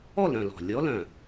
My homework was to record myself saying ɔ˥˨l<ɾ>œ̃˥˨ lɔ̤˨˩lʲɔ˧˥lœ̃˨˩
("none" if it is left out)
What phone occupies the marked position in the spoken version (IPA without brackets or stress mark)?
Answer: ɾ